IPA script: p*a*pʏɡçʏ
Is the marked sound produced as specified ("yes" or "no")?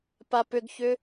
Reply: yes